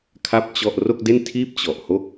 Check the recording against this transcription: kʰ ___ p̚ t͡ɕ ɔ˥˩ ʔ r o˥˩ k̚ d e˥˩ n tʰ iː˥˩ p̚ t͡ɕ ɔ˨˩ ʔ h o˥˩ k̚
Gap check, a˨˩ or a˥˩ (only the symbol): a˥˩